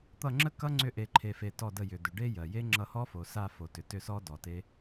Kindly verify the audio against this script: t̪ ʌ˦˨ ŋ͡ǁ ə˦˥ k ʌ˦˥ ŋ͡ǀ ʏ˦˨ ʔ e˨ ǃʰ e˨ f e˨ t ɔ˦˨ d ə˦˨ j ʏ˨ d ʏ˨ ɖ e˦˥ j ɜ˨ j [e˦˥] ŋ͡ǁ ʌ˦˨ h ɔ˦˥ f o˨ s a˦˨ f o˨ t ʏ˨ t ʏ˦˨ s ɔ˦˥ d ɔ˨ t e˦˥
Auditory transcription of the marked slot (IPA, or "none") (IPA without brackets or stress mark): e˦˥